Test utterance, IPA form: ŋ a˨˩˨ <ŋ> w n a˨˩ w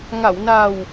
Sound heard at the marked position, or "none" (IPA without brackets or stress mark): none